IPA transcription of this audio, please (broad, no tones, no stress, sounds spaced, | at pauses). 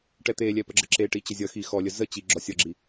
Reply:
ʈ ɛ t̪ e lʲ ɛ p ə ɡ͡ǁ ə ǁ e ʈ i t͡ɕ ə zʲ ʌ x i x ɔ lʲ ə z ə t͡ɕ i ɡ͡ǁ ɔ sʲ ʌ ɡ͡ǁ i